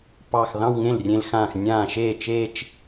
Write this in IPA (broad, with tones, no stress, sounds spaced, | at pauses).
p ɑ˧˩ x ð ɑ̃˥˧ w ŋ ẽ˥˩ l rʲ ẽ˧ l x ãː˧˩ x nʲ ãː˥˩ ʃ eː˥˩ t͡ʃ eː˥˧ t͡ʃ